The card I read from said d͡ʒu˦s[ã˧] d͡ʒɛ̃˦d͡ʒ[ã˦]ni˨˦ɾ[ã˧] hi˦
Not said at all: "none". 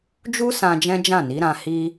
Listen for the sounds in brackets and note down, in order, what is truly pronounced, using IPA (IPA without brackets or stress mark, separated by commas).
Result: ã˧, ã˦˨, ã˧